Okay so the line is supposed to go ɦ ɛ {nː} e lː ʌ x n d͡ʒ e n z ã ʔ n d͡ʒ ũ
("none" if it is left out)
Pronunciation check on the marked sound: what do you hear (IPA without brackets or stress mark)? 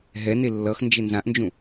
n